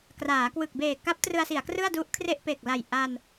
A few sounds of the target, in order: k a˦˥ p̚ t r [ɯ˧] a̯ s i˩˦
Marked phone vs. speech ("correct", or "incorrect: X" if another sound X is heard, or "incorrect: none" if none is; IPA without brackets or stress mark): correct